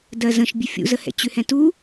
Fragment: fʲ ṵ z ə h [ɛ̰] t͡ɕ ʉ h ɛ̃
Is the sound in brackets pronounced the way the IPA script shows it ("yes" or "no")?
yes